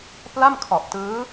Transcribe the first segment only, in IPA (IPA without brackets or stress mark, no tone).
p